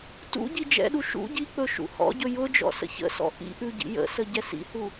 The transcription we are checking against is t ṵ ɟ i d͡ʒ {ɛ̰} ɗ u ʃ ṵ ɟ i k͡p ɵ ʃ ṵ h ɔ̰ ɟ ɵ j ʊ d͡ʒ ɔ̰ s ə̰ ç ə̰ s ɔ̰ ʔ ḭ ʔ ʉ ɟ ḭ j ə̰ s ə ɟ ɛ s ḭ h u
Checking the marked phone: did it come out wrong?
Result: no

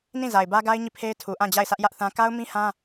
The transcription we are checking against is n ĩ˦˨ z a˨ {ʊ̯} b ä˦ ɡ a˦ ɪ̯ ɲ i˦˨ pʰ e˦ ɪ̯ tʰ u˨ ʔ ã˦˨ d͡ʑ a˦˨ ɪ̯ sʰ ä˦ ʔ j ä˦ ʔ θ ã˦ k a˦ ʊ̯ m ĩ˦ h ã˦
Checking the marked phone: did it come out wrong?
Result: yes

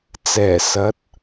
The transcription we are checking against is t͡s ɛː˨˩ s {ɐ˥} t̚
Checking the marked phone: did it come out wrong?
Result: yes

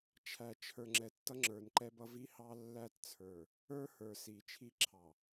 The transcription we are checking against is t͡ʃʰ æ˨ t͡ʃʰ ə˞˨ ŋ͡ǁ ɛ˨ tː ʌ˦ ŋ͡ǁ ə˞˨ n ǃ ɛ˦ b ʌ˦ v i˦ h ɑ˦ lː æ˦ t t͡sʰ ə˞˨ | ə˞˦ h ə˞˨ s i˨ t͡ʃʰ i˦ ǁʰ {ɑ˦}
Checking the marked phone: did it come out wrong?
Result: yes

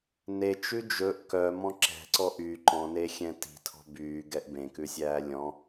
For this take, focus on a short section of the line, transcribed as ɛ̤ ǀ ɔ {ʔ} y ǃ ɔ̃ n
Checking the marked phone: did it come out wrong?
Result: no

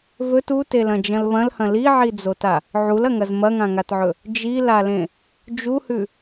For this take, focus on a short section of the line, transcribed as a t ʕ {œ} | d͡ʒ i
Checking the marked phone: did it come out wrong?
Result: yes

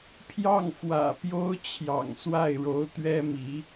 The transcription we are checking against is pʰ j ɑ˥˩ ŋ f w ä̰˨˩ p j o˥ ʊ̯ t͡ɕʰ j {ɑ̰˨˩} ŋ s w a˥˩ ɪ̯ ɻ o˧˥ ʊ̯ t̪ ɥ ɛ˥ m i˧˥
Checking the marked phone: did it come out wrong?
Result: no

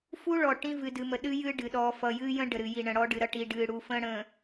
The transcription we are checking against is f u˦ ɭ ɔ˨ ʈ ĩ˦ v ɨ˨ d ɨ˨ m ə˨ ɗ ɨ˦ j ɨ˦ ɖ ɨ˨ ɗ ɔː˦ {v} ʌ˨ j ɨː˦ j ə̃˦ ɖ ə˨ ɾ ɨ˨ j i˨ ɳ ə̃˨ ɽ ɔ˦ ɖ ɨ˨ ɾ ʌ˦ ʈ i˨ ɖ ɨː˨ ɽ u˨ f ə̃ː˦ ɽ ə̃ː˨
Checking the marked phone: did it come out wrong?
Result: yes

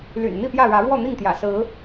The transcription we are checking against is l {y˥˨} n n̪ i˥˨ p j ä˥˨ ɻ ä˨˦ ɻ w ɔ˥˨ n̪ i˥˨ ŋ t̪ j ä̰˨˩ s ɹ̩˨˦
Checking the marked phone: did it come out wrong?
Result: yes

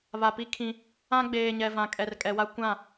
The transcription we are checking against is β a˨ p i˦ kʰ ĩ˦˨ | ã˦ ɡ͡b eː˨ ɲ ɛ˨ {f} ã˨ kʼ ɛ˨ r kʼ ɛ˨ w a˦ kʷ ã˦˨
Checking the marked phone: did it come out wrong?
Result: yes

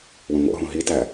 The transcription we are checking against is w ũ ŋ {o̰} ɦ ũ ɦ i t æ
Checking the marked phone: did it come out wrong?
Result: no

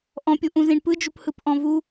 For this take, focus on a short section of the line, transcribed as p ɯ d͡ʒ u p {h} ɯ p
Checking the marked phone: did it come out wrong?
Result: no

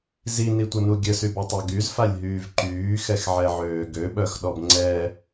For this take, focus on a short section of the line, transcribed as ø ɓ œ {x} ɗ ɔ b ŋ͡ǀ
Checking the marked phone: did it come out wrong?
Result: no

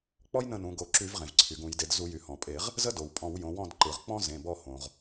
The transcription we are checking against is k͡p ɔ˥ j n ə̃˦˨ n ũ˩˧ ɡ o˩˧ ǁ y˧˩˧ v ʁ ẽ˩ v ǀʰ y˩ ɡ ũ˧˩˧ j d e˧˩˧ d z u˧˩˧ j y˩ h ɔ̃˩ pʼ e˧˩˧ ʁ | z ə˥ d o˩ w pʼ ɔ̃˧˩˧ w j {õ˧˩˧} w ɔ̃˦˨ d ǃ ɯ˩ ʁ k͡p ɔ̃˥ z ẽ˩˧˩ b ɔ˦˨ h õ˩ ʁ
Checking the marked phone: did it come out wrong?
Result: yes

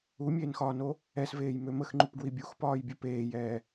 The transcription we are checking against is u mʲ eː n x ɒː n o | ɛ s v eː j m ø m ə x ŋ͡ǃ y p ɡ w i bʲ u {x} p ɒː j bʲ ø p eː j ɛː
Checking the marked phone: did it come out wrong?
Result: no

